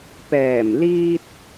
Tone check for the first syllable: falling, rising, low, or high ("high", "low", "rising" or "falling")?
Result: low